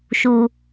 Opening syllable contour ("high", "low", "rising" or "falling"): low